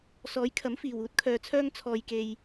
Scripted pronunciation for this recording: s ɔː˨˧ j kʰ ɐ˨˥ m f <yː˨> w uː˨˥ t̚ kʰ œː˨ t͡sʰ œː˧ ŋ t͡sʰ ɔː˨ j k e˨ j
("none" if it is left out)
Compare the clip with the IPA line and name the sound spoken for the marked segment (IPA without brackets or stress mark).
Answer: iː˨